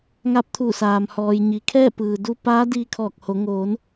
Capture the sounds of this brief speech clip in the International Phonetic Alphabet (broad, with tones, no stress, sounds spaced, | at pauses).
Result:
ŋ a˧˥ p̚ t̪ʰ u˧˩ s aː˩ m h ɔː˩ j ɲ i˩ kʰ ɛː˥˨ p ɯː˩ d u˧ p aː˧˥ d iː˧ kʰ ɔː˧˩ k̚ h o˩˧ ŋ oː˩˧ n